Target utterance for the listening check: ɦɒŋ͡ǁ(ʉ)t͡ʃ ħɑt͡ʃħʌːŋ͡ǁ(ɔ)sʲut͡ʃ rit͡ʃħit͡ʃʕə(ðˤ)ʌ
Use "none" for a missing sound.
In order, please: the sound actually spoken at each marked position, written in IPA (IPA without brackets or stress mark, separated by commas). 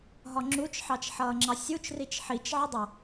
u, ɑ, dˤ